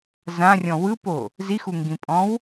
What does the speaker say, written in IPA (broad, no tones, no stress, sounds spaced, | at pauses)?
z ã rʲ ɔ̃ w ɯ p o | z i x u ŋ ɡ ĩ pʼ ɔ̃ w